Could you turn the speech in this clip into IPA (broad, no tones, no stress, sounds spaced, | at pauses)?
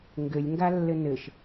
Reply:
ŋ ɡ ɘ lʲ ŋ ɡ a lː ɘ n ɘ ʃ